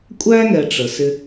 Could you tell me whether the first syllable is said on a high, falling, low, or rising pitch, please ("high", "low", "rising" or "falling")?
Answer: high